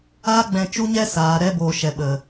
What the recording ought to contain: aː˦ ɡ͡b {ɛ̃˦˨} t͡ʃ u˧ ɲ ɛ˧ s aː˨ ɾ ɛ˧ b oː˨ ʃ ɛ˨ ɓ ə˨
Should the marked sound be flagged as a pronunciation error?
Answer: yes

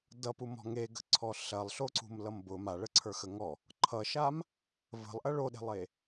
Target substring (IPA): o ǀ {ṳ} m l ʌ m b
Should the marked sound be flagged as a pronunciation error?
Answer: no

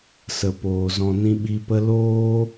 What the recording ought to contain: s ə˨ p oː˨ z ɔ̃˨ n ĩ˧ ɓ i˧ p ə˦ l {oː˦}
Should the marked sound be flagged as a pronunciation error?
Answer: no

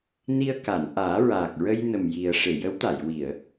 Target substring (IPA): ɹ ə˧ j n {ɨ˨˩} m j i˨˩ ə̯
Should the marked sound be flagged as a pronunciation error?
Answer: yes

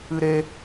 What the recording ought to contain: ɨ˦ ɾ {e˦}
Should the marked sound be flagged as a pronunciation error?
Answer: no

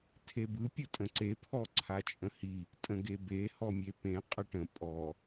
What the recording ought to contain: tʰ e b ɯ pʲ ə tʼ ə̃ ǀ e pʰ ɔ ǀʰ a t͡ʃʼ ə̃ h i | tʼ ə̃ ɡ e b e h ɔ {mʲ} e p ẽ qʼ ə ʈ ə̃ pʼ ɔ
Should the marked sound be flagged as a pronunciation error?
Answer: no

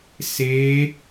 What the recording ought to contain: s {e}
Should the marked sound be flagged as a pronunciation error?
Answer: no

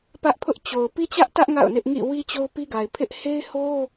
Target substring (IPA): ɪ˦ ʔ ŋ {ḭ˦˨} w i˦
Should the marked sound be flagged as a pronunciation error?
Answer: no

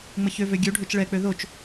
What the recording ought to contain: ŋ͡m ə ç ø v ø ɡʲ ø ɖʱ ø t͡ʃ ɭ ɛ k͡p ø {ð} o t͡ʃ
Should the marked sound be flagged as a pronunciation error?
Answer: no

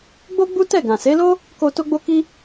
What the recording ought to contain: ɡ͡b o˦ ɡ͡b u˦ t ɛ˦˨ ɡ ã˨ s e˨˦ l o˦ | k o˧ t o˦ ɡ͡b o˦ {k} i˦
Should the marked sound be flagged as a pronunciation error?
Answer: no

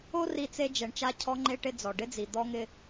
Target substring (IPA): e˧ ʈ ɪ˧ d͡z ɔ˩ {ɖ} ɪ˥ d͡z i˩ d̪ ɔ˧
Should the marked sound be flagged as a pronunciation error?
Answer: no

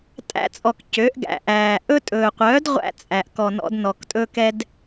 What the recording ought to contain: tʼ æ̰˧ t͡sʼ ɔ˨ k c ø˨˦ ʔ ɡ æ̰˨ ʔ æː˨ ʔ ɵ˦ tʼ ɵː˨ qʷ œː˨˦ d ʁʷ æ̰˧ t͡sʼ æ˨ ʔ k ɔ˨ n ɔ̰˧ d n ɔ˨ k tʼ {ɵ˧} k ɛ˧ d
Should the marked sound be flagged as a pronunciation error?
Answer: no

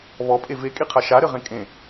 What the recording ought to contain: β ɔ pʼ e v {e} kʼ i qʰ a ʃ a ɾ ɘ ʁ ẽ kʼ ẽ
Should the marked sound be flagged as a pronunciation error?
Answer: no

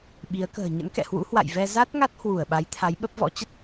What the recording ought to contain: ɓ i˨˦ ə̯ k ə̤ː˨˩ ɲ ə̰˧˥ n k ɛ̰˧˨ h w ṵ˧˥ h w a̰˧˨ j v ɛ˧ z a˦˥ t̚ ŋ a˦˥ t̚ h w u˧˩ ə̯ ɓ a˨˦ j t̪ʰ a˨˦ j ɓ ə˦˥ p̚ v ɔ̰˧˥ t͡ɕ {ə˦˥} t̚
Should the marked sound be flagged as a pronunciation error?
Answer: no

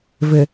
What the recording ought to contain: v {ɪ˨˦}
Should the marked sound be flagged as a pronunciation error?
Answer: yes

